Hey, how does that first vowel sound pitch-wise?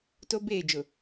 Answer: high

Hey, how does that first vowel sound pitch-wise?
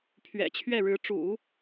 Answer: low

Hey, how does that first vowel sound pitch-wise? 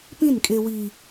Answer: falling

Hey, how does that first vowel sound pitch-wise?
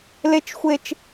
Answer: high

